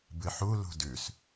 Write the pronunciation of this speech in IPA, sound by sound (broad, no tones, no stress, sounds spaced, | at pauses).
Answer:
b ɨ ħ u l ṳ d ʉ s